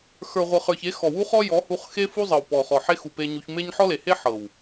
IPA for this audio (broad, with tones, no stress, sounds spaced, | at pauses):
x ə˞˨ ʁʷ ɤ˨ χ ə˞˨ ç e˨˦ x ɔ˨ w u˦ χ ɔ˦ j ɔ˨˦ h u˧ χ x e˦ f u˦ zˤ ɤ˨ w p ɔ˨ χ ɔ˨ ħ e˦ x u˨ p e˧ ɲ u˧ ç m e˦ ɲ ħ ɔ˦ l e˨ h e˦ ħ ɤ˨ w